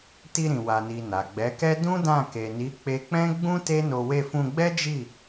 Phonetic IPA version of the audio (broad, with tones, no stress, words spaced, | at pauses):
ti˧ɾĩ˨ wa˨ni˨ na˨ɡ͡bɛ˨˦kɛ˦ dũ˦dã˦˨ ke˨ni˨˦ k͡pe˧k͡pɛ̃˦ɡ͡bũ˦ te˦no˧ we˧fũ˧ɡ͡bɛ˦d͡ʒi˦˨